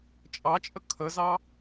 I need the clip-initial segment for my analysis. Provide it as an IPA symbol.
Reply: t͡ʃʼ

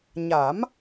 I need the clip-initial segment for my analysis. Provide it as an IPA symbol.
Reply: ɲ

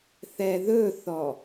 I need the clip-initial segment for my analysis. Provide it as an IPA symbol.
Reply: θ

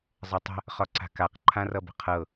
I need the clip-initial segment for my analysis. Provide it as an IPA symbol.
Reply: zˤ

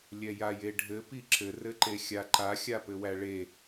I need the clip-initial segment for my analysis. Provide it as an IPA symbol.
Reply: lʲ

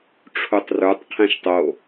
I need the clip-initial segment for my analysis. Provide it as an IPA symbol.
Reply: ʈ͡ʂʰ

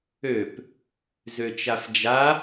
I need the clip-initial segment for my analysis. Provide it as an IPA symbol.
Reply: ø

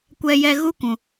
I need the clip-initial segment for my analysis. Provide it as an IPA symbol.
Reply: kʷ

